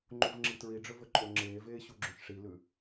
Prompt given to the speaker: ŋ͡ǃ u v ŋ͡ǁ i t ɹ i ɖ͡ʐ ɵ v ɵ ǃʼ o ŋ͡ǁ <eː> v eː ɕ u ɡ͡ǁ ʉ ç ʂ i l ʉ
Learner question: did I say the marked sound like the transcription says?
yes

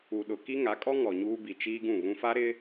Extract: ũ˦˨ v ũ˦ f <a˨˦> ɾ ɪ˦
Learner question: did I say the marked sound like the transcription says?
no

